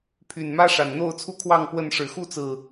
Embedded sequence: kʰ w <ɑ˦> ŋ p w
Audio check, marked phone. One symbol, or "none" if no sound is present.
ɑ˥˨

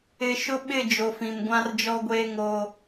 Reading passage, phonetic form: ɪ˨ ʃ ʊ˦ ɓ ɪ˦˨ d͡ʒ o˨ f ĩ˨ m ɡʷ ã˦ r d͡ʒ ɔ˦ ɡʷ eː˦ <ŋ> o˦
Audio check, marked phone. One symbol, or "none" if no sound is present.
ŋ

